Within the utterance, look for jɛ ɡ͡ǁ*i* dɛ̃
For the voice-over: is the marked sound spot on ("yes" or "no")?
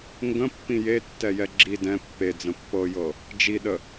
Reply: yes